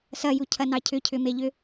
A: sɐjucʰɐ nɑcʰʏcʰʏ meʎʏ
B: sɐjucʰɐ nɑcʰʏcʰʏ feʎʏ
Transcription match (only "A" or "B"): A